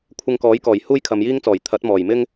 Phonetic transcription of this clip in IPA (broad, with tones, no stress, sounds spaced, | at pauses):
kʷʰ ɪ˧ ŋ k ɔː˨˥ j k ɔː˨˩ j h uː˥ j kʰ ɐ˨˧ m j iː˥ ŋ t͡s ɔː˨˩ j t̪ʰ ɐ˨˥ t̚ m ɔː˨˩ j m ɪ˥ ŋ